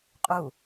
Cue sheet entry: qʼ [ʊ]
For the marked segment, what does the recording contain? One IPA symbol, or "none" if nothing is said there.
u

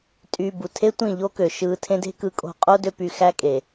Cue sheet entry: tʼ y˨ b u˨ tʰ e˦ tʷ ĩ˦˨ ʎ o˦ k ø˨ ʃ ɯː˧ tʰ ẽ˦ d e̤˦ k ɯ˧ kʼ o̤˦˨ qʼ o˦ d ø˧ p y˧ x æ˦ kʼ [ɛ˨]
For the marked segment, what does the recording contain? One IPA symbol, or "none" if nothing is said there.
e˨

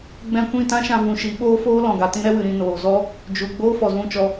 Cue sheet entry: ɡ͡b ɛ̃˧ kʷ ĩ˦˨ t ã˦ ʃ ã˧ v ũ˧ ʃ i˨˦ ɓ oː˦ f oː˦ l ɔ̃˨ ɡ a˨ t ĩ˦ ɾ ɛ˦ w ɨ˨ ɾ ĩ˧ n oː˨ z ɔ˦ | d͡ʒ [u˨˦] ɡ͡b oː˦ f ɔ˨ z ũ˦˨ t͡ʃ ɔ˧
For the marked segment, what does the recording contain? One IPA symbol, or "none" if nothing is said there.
u˨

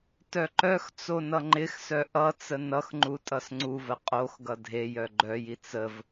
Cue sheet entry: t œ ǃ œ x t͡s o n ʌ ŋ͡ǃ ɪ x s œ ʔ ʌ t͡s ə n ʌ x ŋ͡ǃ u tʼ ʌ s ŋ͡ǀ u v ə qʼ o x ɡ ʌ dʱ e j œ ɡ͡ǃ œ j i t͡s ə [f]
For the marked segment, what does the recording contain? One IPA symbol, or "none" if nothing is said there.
v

